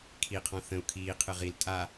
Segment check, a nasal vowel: present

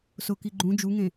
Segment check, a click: present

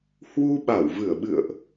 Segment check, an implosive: present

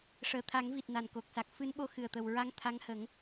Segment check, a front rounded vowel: absent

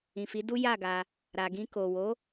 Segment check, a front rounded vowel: absent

